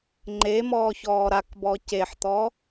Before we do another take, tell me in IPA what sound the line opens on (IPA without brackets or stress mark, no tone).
ŋ͡ǃ